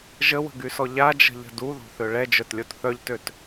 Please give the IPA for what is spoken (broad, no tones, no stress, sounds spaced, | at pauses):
ʒ ə w ə̤ ɡ y s ɔ ʎ a d͡ʒ ə̤ ʎ ə̤ d u ð o̤ θ ø ɭ ɛ d͡ʒ œ t lʲ o t θ œ ʎ t ø t